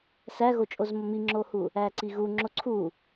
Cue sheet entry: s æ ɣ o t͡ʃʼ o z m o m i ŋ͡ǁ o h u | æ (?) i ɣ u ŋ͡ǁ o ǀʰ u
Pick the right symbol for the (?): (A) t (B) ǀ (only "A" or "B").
B